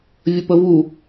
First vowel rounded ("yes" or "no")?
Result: no